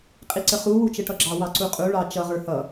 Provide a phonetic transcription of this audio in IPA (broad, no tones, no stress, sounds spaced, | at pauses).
qʼ i ǀ ə χ u w u t͡ʃ ə ʈ ʌ ɡ͡ǁ ɑ w ɑ ǀ u qʼ u ɭ ɑ t͡ʃ ʌ ʁ ə˞ h ʌ